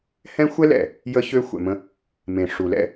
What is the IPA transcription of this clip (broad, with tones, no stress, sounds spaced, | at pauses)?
h ɛ̃˦ xʷ ɛ˦ l ɛ̰˨ | j ə˦ ç ø˦ xʷ ɛ̰˨ m ə̃˦ | m ẽ˨ ʂ u˨ l ɛ̰˦